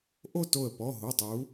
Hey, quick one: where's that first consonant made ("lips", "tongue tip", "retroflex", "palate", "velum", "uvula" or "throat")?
throat